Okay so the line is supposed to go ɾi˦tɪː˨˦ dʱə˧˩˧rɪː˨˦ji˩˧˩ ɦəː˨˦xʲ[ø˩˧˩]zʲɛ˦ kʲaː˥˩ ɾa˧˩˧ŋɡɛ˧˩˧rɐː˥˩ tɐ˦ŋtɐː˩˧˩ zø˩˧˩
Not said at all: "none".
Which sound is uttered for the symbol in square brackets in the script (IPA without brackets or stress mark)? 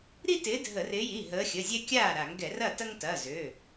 ə˩˧˩